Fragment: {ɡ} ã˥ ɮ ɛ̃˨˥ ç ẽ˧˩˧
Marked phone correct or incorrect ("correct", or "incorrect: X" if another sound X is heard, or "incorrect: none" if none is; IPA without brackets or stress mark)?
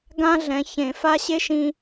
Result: correct